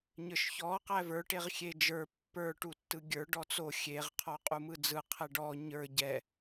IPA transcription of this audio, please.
ɲ ə˞ ʃ ç ɔ q æ v ə˞ ʈ e ʁ xʲ e d͡ʒ ə˞ pː ə˞ ʈ u tː ɯ ɡʲ ə˞ ɖ ɔ t͡s o xʲ e ʁ qʰ ɔ qʼ u m ɯ d͡z ɯ qʰ ɛ ɖ ɔ ɲ ə˞ ɟ ɛ

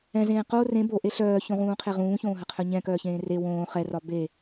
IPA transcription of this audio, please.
ɛ̃ z ẽː q o r ẽ b o ʔ e ɬ œː ç õ ʁ ũː qʰ e ʁ ũː ç õː ɦ ə qʰ œ ɲ ɛ̃ k œː ç ẽː r e w õː χ ɛ r ɒ b e

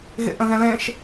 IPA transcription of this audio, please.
ɣ ḛ ʔ ə̃ ɣ ɛ̃ l ẽ ʃ

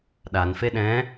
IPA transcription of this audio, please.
ɗ a n f e ɗ ɛ̃

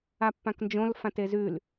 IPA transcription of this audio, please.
a pː ã k n d͡ʒ õ l f ã t e z ʉ l

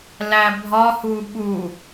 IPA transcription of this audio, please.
l æ bʱ ɒ h u ɓ u

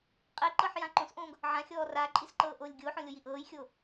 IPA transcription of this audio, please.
qʼ e ǃ ɤ ħ j ã ǃ õ s ʔ õː ɡ | ʕ ã xʲ ɔː r a ǃʼ i s ǃ ɤː ʔ oː lʲ ɡʲ oː ħ õ lʲ o j i ʔ ɤː j xʲ oː

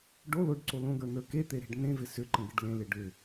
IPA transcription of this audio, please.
ɖ o l o ɖ ǀ o l õ ɡ ə˞ n ə˞ k e t̪ e ɾ e̤ ɖ n ẽ v ɪ s ʏ ǃ ə̃ ɡ ɪ ɖ l ẽ l ɪ ɖ ʏ

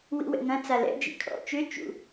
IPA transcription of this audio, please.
w ḭ w ɛ̰ ŋ ɐ̃ t͡s a l ɛ̰ d͡ʒ ḭ kʰ ɔ̰ t͡ʃ ʏ t͡ʃ ṵ

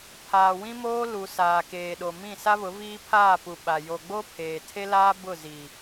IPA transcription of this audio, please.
pʰ aː˨ w ĩ˦ m oː˦ l u˨ s aː˨ k eː˨ ɗ o˨ m ĩ˦˨ s a˦ β ʊ˨˦ v iː˦ pʰ aː˦˨ p u˨ ɓ a˨ j o˨ ɡ͡b o˦ pʰ eː˨ tʰ e˦ l aː˦ b ʊ˦˨ z i˨

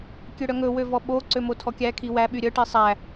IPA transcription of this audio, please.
kʲ ø ɽ œ ŋ ɵ w ø v ɔ ɓ o ǀ ø m o tʰ ɔ kʲ æ kʰ i w æ ɓ y ɾʲ œ ʈ i sˤ æ

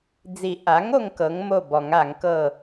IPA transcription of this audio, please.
d͡z i˨˩˦ ʔ a˩˥ ŋ o˦ ŋ k ɤ˩˥ ŋ m o˥˩ b ɔ˨˩˦ ŋ a˨˩˦ ŋ k ɤ˥˩

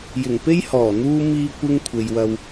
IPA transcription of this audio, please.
j ɪ˨˩ ŋ p e˥ j h ɔː˨˩ n̪ uː˧ m iː˧ kʷ ɪ˧ ŋ kʷʰ e˨ j w ɐ˧ w

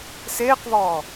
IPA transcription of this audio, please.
s eː q v ɔː

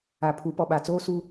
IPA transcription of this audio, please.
a˨ pʰ u˨˦ p ɔ˨ ɓ a˨ t͡s oː˦ s u˦

